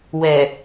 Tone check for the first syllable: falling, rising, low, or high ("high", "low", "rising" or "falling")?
low